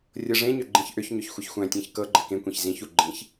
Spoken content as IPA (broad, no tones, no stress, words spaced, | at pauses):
rʲɤʐẽɲʏ ɡ͡ǃĩçʔʏçɲʏç xʷɘçxʷæ̃tʲæ̃ç kɤɡ͡ǃɘ kẽkʷẽç zĩçu ɡ͡ǃĩç